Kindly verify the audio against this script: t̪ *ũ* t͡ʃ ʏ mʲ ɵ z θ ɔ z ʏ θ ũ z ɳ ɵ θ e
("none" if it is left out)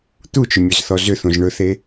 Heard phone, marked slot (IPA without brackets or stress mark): u